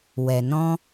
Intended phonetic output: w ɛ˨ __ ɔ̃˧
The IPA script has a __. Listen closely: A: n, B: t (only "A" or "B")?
A